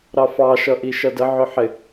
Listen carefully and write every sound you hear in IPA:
ɾ ɑ f ɑ ʃ ʌ ʔ i ʃ ʌ d ə ʕ ʊ ħ ɪ

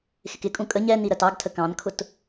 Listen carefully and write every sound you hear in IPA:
x ɪ k ɪ kʼ ũ kʼ ə ɲ ɛ n i ɾ ɜ t ɑ ɡ tʰ ə k ɑ̃ n kʰ ʊ t

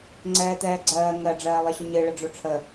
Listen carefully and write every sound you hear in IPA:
ŋ͡ǀ ɛː t̪ ɛː ɡ͡ǀ ɜː ŋ ɜ ɖ͡ʐ ɜː lˠ ɨ ɕ ɵ ɲ ɨ ɭ ə ɖ͡ʐ o ʈ͡ʂʰ ə

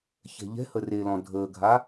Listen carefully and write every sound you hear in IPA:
ç ɛ̤ ʎ ɛ̤ h ə r e l ɔ̃ dʱ əː ɡʱ a

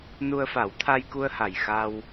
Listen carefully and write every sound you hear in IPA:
n u˧ ə̯ f a˨˩˦ w t̪ʰ a˧ j k u˧ ə̯ h a˨˩ j x a˧ w

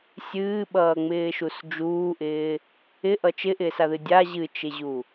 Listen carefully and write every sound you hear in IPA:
sʲ ɨː ɓ ʌː ŋ͡m ɪː ʃ u s d͡ʒ uː ʔ ɪː | ɪ ʔ ʌ t͡ʃ ɪ ʔ ɪː s a ð ɨ dʲ a ʑ ɨ t͡ʃ ɪ ʑ u

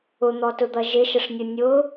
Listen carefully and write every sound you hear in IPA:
ʊ n̪ ɔ t ʊ d̪ ʌ ʒ ɪ ʃ ə ʂ nʲ ʊ nʲ ʊ

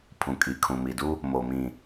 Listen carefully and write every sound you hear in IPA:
pʰ ũ˨ kʼ i˨ kʰ ũ˨ m i˨ d u˦ | m o˨ m ĩ˨

